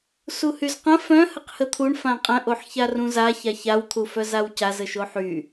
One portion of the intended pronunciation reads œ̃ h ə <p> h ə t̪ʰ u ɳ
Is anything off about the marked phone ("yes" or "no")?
yes